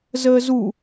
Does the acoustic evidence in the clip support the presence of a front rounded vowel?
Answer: no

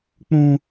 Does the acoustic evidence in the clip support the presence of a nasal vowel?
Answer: yes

